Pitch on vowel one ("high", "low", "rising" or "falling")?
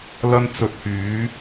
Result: high